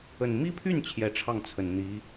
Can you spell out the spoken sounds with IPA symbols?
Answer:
ə˨˩n mi˥pʰy˥˩n t͡ɕʰjɛ˧˥ʈ͡ʂʰɑ˥˩ŋt͡sʰə˨˩n n̪i˧˥

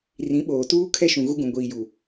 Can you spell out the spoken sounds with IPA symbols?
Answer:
rĩ˨˦ɓoː˨tuː˦ kʰɛ˦ʃũ˨ ɣu˦ɡũ˨ ɡʷiː˨ju˨

